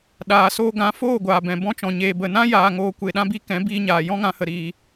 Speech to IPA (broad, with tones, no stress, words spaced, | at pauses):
ɗaː˨soː˧ ɡã˨˦ foː˦˨ɡʷaː˨bɛ̃˨ bɔ̃˧t͡ʃɔ̃˨ ɲeː˧bə˦˨ nã˦ jaː˧ ŋoː˧kʷe˧ɗã˦bi˦ kɛ̃˨˦ biː˧ɲaː˨ jɔ̃˦ŋã˧ hə˧ɾiː˧